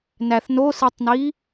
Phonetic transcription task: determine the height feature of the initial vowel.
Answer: low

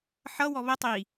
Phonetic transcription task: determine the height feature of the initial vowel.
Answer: mid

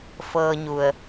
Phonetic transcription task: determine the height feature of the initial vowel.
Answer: mid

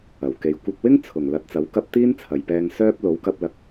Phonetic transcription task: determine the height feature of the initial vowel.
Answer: low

